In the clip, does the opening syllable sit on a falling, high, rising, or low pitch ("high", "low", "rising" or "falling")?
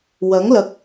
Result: rising